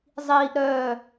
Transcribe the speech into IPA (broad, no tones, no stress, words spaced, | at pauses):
zˤiːʔ ɾœː